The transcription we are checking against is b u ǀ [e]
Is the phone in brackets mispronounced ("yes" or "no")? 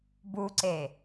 no